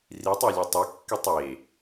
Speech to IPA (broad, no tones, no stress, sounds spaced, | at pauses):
r i tˤ ɒ lʲ ø tˤ e kː i tˤ e